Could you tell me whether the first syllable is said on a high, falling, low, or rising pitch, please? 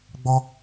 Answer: high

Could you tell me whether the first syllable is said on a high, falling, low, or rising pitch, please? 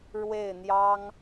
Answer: falling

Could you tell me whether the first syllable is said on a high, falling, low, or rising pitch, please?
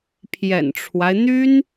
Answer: low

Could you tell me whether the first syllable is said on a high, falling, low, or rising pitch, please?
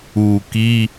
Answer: low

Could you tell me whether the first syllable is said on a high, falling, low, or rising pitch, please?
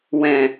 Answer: low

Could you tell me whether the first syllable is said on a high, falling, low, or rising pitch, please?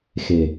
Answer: low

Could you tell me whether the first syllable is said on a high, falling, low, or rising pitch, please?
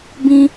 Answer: high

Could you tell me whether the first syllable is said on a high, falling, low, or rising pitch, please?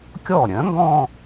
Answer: falling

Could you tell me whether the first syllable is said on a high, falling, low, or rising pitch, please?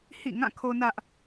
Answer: falling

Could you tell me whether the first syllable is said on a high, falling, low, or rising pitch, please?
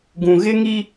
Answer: low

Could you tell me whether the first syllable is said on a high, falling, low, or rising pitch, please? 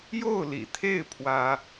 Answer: falling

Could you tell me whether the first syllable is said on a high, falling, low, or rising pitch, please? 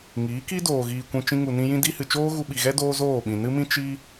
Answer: rising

